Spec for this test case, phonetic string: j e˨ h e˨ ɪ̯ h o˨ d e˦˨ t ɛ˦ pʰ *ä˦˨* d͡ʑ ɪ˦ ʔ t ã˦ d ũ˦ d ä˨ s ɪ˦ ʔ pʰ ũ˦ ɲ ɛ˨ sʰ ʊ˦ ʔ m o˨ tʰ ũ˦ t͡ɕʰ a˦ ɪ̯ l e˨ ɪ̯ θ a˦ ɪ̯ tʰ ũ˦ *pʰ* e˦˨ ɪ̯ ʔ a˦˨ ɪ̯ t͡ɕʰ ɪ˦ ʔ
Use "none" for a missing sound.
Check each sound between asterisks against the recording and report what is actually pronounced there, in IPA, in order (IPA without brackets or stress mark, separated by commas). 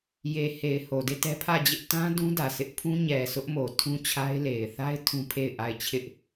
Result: ä˦˨, pʰ